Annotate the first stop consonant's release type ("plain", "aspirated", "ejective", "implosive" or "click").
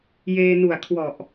aspirated